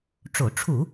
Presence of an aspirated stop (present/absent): present